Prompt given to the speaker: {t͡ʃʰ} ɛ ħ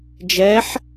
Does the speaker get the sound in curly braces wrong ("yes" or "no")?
yes